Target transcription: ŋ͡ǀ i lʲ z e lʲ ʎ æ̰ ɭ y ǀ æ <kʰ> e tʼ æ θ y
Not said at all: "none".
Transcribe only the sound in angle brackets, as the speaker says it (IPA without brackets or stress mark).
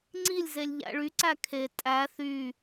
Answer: kʰ